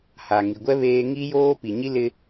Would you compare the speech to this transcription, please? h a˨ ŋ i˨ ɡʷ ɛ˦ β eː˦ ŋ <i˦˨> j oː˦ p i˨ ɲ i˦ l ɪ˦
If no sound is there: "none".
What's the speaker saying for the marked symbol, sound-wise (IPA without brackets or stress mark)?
i˦